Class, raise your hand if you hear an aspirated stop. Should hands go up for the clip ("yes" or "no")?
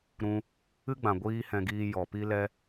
no